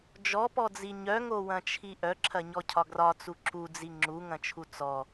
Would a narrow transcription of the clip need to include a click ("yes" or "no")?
yes